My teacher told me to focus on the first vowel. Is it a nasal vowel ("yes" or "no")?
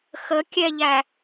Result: no